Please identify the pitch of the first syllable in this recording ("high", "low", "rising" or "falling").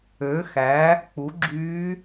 rising